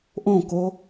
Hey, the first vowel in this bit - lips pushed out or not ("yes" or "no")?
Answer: yes